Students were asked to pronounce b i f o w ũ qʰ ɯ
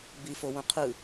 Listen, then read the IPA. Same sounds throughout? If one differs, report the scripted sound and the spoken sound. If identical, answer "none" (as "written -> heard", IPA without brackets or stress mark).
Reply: none